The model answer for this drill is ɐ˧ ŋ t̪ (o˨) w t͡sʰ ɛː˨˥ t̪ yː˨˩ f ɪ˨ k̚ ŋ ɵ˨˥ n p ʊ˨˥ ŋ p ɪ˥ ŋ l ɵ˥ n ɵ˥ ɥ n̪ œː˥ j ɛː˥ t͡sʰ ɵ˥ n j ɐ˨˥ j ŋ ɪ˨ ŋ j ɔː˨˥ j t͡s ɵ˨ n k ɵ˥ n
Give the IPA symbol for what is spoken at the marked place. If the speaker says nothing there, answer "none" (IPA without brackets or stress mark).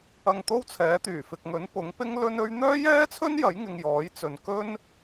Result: o˥